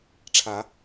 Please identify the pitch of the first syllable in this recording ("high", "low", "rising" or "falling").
rising